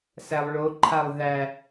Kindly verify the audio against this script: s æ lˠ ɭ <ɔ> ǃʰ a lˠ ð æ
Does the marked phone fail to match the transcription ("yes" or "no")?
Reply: yes